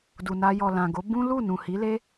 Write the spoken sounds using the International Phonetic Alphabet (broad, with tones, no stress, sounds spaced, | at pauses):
d u˨ n a˧ j ɔ˨ l ã˨ ɡ o˨˦ b ũ˦ l u˦˨ n ũ˨ h i˨˦ l e˦